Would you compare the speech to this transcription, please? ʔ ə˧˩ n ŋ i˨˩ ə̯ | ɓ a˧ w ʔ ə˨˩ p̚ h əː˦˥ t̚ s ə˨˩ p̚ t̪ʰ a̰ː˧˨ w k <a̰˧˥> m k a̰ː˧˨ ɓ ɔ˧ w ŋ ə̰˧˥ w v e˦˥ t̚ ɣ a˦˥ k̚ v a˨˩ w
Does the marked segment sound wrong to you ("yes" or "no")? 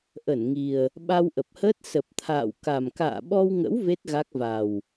yes